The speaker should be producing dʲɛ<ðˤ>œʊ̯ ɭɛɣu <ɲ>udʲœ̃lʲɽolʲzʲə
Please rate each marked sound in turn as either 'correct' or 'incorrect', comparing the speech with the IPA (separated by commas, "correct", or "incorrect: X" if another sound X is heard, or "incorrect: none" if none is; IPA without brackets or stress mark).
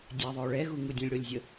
correct, incorrect: ŋ